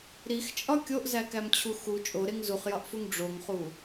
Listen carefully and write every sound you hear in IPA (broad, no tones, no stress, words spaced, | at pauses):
ɾixt͡ʃʼɒ kʲoʔzækæmt͡ɕʰu xu t͡ʃʼoɾeŋ zuχjɒʔfuŋ ɖ͡ʐoŋχu